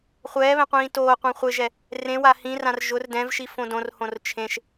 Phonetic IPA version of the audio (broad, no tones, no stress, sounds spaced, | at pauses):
χʷ ɛː β ɛ̃ qʷ ĩː t oː qʷ ã χʷ ɪ ʒ ɛ | r ẽ w a h ĩ r ã r ʒ ʊ r d ɛ̃ v ʃ i f õ d õ r h õ r t͡ʃʰ ẽ ʃ